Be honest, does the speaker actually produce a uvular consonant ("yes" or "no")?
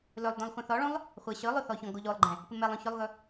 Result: yes